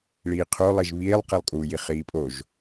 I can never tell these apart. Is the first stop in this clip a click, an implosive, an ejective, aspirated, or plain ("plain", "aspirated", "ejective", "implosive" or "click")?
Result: aspirated